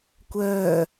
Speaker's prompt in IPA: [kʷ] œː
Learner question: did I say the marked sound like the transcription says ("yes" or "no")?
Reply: yes